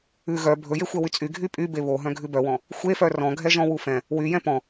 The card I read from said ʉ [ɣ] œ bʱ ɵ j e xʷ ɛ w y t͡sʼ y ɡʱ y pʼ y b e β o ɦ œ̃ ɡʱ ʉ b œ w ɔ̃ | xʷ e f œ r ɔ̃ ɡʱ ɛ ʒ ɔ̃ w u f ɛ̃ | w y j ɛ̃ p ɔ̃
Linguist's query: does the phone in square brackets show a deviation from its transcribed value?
no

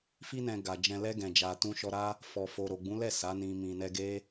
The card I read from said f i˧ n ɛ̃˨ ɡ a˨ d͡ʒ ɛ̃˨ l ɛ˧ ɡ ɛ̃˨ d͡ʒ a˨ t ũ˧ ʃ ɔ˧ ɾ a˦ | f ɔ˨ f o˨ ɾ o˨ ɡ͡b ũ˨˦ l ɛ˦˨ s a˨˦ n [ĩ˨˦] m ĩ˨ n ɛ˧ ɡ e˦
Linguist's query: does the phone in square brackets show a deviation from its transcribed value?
yes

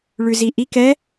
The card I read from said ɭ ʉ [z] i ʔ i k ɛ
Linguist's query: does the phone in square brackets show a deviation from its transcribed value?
no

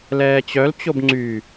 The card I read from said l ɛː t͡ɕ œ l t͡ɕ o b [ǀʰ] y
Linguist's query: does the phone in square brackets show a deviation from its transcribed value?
yes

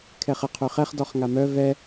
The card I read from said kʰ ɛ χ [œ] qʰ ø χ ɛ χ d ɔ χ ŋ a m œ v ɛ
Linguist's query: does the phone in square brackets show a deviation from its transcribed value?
yes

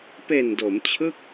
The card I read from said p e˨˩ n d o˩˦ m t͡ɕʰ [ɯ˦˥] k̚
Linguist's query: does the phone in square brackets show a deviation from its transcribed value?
yes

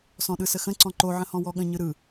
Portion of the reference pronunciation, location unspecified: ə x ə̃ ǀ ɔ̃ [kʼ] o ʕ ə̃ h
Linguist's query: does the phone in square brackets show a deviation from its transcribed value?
yes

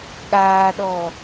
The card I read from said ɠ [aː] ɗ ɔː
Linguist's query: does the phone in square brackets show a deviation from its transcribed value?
no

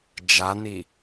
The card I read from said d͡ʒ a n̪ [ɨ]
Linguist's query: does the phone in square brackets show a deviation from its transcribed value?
yes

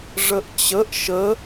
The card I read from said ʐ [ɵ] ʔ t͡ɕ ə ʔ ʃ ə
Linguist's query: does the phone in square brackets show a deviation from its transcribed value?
yes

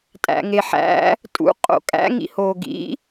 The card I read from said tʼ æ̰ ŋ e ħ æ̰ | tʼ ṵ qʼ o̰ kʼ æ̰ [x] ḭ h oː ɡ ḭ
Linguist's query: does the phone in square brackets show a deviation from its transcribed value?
yes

